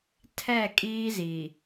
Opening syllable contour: falling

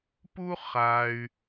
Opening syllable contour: high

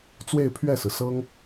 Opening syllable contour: falling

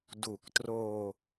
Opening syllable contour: low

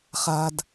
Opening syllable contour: low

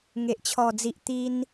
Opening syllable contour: low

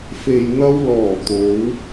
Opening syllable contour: low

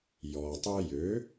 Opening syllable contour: low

